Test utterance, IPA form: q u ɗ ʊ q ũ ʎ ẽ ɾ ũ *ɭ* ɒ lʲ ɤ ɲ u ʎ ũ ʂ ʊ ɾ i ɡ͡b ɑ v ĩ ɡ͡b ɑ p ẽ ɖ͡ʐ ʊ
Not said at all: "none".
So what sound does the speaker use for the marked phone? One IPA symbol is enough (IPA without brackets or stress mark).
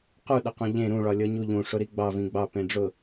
ɭ